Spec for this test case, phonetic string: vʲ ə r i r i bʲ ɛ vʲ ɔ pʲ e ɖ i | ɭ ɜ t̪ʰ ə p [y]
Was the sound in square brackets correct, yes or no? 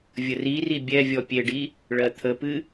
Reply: no